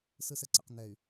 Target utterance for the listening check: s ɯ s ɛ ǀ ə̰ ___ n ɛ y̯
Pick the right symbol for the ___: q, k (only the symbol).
q